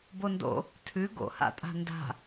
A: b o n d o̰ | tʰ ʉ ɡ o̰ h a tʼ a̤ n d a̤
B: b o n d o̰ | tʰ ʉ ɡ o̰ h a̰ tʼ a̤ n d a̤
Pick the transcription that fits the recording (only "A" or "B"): B